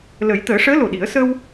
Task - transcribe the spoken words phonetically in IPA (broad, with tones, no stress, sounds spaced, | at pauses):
l ə˨˩˦ j t̪ əː˨˩˦ ʂ əː˧˥ l o˨˩ ɗ i˨˩˦ ə̯ s ə˧ w